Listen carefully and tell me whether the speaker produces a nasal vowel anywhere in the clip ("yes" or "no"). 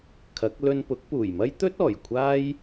no